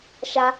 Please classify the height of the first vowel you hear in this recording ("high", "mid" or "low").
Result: low